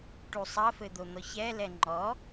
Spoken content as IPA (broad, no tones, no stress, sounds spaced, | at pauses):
ʈ u sˤ ɐ f ɘ d̪ o n̪ ɔ ç ɛ l ɛ ŋ͡ǃ ɔ